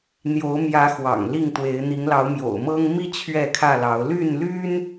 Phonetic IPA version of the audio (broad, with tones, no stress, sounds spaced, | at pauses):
n̪ j o˨˦ ʊ̯ m j ä˨˦ x w ɑ̰˨˩ ŋ l i˥˨ ŋ t̪ w e˨˦ ɪ̯ n̪ i˨˦ ŋ l ɑ˨˦ ʊ̯ m j o̰˨˩ ʊ̯ m ɤ˦ ŋ m i˦ t͡ɕʰ ɥ ɛ˥˨ kʰ ä˥˨ l ɑ˨˦ ʊ̯ l y˥˨ n l y˦ n